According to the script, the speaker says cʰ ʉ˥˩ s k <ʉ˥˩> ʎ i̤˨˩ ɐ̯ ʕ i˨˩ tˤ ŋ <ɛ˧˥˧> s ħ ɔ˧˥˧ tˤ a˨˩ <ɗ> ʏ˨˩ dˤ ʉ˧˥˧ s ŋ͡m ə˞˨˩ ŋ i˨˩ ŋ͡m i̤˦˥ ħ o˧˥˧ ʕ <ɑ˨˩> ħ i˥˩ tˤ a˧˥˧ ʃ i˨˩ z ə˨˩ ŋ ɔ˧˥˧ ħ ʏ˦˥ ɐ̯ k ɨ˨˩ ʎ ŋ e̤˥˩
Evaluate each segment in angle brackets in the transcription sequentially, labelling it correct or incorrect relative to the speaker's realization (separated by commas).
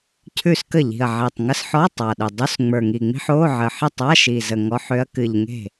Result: incorrect, incorrect, correct, incorrect